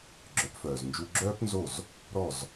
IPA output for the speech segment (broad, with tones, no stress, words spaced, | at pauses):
ɡ͡ǁœ˩˥pfœː˩z nd͡ʒu˧ɡ͡ǁœː˥pnzo˥˩z | ɾɔ˥˩z